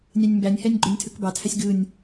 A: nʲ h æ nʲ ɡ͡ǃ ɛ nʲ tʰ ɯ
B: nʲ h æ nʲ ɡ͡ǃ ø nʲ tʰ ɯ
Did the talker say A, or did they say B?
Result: B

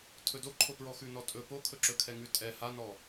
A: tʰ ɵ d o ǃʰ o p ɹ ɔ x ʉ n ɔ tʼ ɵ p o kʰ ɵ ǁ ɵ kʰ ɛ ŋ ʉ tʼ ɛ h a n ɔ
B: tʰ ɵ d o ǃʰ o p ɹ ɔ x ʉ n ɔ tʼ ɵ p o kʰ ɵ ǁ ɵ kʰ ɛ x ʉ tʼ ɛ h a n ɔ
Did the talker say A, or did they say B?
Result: A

